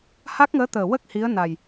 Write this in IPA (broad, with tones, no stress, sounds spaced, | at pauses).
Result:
h a˦˥ k̚ ŋ əː˧˥ t̪ əː˨˩ w ə˦˥ k̚ h i˧˥ ə̯ n a˨˩ j